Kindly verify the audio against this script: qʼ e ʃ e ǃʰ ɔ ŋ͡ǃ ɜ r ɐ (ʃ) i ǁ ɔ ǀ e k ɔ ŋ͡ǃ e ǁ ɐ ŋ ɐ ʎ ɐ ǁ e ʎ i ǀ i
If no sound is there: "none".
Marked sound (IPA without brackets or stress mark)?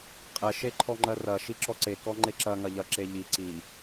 ʃ